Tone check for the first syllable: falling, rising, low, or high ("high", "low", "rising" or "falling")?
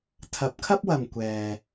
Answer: rising